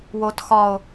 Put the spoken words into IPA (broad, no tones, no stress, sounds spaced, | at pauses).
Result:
w o t x ɒ o̯